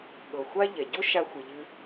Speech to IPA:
ɠ ɤ˩ xʷ a˥ ʎ ɛ˩ ɟ o˥ ʃ a˧ xʷ ɨ˩ ʎ ɨ˧

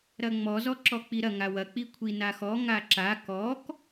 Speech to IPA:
ɾ ɐ ŋ͡m ɔ z ɔ ǁ ɔ k͡p i ɾ ɐ ŋ a w ɐ k͡p i kʷʰ i n a x ɔ ŋ a ǁ a k ɔ k

